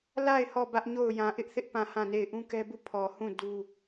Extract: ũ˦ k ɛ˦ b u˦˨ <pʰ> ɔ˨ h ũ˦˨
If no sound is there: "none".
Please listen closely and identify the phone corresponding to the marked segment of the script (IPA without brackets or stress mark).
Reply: pʰ